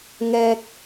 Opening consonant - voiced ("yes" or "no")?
yes